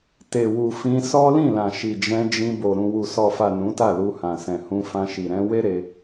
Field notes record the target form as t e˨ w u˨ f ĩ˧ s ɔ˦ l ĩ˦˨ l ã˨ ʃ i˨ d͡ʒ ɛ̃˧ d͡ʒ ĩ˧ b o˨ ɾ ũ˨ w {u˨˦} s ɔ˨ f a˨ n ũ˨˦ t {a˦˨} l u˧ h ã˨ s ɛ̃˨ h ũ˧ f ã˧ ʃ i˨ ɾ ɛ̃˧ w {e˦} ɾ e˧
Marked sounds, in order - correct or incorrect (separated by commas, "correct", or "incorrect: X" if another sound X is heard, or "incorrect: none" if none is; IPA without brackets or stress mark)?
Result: incorrect: u˨, correct, correct